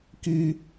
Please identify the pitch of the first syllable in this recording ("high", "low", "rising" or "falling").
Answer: high